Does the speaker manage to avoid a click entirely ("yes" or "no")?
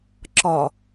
no